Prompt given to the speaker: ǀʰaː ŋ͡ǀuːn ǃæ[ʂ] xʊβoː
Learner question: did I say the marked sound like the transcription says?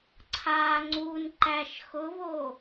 no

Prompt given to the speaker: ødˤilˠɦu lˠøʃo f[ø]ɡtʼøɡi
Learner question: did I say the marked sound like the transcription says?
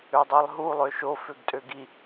yes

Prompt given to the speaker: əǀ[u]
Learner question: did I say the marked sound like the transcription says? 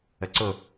no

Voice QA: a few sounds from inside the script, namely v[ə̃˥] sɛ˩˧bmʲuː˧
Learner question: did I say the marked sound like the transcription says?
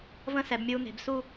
yes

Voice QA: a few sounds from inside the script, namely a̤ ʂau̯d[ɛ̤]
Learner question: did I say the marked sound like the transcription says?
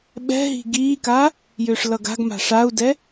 no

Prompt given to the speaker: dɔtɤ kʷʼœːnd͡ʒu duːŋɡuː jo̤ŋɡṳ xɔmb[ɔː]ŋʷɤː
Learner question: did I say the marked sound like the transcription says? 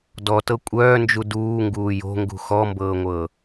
no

